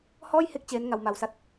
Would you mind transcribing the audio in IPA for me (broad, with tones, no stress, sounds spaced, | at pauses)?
h ɔː˥˩ j h e˦˥ k̚ t͡ɕ eː˦˥ n ŋ a˧ w m a˧ w s a˦˥ t̚